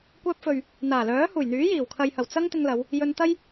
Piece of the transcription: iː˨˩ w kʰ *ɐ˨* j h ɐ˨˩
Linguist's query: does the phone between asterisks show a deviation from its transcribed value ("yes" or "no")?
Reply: no